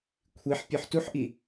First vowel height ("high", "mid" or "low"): high